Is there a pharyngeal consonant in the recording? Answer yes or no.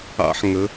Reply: yes